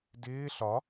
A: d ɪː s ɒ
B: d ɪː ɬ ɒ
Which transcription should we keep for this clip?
B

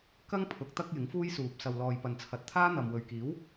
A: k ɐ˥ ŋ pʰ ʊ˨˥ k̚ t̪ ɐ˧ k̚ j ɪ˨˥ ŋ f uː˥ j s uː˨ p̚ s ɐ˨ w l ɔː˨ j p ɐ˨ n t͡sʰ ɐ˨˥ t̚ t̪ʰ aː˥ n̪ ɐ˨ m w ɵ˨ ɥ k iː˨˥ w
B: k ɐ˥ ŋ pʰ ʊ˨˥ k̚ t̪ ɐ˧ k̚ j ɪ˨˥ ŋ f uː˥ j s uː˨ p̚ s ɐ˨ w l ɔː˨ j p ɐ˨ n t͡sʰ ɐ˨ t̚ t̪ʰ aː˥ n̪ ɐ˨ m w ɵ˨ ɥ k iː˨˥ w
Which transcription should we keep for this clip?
A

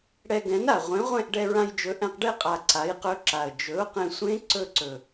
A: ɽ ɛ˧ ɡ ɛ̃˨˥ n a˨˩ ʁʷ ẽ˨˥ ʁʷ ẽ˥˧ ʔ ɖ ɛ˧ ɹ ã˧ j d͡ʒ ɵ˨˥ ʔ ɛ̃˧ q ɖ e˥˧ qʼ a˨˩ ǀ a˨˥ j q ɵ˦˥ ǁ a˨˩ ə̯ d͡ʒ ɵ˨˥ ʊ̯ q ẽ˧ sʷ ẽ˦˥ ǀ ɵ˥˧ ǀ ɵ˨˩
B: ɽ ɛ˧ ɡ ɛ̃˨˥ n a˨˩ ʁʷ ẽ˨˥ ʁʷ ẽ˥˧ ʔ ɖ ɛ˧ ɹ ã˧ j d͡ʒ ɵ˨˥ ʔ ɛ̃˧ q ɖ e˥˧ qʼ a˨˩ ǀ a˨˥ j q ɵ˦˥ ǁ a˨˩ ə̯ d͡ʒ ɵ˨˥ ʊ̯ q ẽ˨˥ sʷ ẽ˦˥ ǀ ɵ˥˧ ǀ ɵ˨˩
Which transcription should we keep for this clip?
A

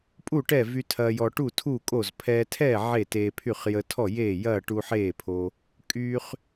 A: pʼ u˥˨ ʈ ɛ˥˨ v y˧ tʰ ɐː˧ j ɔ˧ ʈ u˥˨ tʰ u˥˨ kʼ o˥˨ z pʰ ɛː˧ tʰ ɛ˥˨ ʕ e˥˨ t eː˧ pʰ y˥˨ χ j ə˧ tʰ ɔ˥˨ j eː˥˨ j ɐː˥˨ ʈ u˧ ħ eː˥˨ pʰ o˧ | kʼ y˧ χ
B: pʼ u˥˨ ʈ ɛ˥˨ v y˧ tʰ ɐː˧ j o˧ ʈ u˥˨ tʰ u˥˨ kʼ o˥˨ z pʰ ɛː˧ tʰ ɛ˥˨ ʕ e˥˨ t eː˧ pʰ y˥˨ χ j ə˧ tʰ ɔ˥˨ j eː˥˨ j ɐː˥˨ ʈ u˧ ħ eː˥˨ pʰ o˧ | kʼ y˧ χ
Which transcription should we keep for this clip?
A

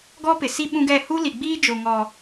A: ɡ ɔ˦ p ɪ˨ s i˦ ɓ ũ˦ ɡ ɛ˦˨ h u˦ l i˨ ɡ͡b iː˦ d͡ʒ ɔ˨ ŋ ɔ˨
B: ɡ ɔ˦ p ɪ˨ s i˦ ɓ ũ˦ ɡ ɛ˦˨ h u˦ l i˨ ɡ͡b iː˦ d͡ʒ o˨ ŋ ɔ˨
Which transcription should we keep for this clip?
B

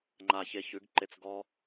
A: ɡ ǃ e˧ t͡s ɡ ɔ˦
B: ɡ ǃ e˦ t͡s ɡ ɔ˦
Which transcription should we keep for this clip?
A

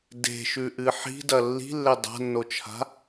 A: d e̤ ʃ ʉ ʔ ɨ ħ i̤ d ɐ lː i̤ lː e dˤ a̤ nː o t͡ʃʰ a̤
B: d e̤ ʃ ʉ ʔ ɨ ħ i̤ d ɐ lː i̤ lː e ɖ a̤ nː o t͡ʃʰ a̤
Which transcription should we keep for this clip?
A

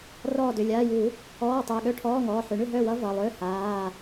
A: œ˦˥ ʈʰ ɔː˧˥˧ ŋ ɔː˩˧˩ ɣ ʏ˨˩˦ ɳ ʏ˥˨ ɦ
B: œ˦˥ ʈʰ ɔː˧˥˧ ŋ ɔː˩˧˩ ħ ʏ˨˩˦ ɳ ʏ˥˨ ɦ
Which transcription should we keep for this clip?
B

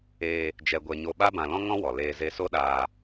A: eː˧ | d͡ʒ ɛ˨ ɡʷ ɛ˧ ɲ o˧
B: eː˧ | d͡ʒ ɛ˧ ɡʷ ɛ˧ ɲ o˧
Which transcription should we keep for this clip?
B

